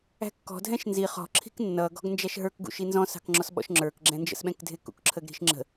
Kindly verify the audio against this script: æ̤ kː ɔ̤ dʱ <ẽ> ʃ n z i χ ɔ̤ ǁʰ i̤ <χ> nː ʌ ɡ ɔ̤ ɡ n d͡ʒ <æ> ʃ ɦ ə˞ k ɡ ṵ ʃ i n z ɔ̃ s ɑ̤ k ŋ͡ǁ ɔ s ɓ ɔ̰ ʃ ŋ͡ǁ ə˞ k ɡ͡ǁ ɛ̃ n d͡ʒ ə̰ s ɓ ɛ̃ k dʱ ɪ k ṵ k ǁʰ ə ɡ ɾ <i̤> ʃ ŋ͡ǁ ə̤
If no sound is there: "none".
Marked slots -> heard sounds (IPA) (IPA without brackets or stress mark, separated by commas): ɛ̃, k, æ, i̤